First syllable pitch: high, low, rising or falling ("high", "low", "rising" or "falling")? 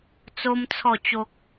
high